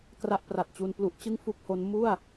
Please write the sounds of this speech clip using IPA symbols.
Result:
k r a˥˩ ʔ p r a˨˩ t̚ t͡ɕ u˧ n p l u˦˥ ʔ t͡ɕ ɯ˥˩ ŋ f u˥˩ k̚ h o˦˥ n m u˥˩ a̯

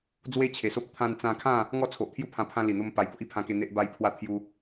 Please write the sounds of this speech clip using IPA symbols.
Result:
d͡z w e˦ t͡ɕʰ e˨˩ s o˦ p̚ t̪ʰ ã˧ n t͡s ã˧ kʰ ã˥˧ | ŋ ɔ˥˧ t͡sʰ o˨ ʔ t̪ʰ j u˦ pʰ ã˧ pʰ ã˦ l i˨˩ n̪ o˦ m p a˧ j b o˦ ʔ i˦ pʰ ã˧ k e˧ n̪ e˦ ʔ b a˦ j pʰ w a˦ t̪ʰ j u˦

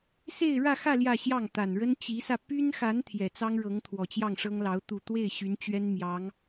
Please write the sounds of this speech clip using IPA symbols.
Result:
s e˥˧ ɪ̯ ɻ ä˥˧ x ä˥˧ l j ä˥˧ ɕ j ɑ˥˩ ŋ t̪ a˨˩ n ɻ ə˥ n t͡ɕ i˧˥ s ä˧ p y˥ n x a˧˥ n t̪ʰ j ɛ˨˩ t͡s ɑ˥ ŋ ɻ ɤ˧˥ ŋ t̪ʰ w ɔ˨˩ t͡ɕ j ɑ˥˩ ŋ ʂ ɤ˥ ŋ l ɑ˧˥ ʊ̯ t̪ u˥˧ t̪ w e˥˩ ɪ̯ ɕ y˧˥ n t͡ɕ ɥ ɛ˥ n m j ɑ˧˥ ŋ

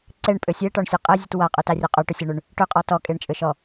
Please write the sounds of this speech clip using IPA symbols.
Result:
ǀ e ɳ pʼ ʏ sʲ e ʈ ɔ ɳ sʲ ʉ qʼ e zʲ ɨ t w a qʼ ʉ t a rʲ ʉ qʼ ʉ ʈ ʏ sʲ a ɳ ʉ ɳ | ʈ ʏ qʼ ɔ t ɔ kʼ e ɳ t͡ʃʼ ʏ ʃ ɔ

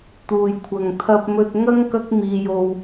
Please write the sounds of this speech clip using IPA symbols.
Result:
t̪ uː˨ j kʷʰ ɐ˨ ŋ t̪ʰ ɐ˧ p̚ m ɵ˧ t̚ ŋ ɐ˥ ŋ k ɐ˧ k̚ m iː˨ j o˨ w

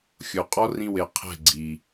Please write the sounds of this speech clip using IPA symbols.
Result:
xʲ o˨ qʼ ɔ˦ r ĩ˧ w e˨ qʰ ɛ̤˦˨ ɡ͡ǀ i˨

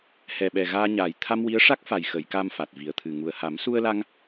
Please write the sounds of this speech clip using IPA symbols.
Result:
h ɛ˨˩ ɓ ɛ˨˩ ɣ aː˧ ɲ aː˨˩ j t̪ʰ a˧ m w i˧˥ ə̯ ʂ a˦˥ k̚ f a˨˩ j x ə˨˩˨ j k a˧ m f a˨˩ t̚ v i˨˩ ə̯ t̪ʰ ɨ˨˩ ŋ u˨˩ ə̯ h a˨˩˦ m s u˧ ə̯ l a˧ ŋ

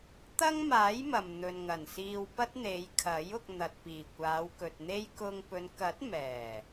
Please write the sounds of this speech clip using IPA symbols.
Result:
t̪ ɐ˥ ŋ m aː˨˥ j m ɐ˨ m n̪ ɵ˨ n ŋ ɐ˨˩ n s iː˧ w p ɐ˥ t̚ n̪ e˨˧ j kʰ ɐ˨˥ j ʊ˧ k̚ n̪ ɐ˨ t̚ p iː˨˩ kʷ aː˨˧ w k ɵ˨ t̚ n̪ e˥ j k ʊ˧ ŋ p ɵ˨˧ n k ɐ˨˥ t̚ m ɛː˨˩

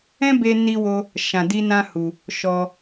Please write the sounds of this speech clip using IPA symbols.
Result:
ɛ̃˦ b e˧ n i˦ w o˦ | ʃ ã˧ d i˦ n ã˦ h u˧ | ʃ ɔ˧

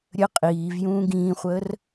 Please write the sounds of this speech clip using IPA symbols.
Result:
ɾʲ ə qʼ iː v j ũː ɡ ĩː χʷ əː r

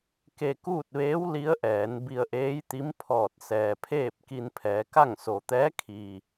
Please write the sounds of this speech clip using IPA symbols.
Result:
k e˧ k uː˥˨ t̚ ʋ eː˧˥ w l i˧˥ ə̯ ʔ ɛː˩˧ n b i˧ ə̯ ʔ eː˧˥ j t̪ i˧˥ m pʰ ɔː˧˩ t̚ s ɛː˩ pʰ eː˥˨ p̚ k i˧ n pʰ ɛː˩˧ k a˥˨ ŋ s o˩ t̪ ɛː˧˥ kʰ i˩

